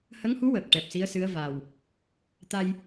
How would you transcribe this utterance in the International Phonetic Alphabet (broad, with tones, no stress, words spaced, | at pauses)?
hə˧˥ŋhu˧˥wəː˨˩k̚ ʈɛ˨˩p̚si˧˥ə̯sɨ˧˥ə̯ va˨˩w | t̪a˧j